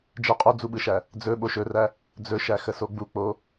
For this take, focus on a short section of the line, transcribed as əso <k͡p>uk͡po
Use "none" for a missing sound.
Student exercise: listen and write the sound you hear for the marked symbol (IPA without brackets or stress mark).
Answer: ɡ͡b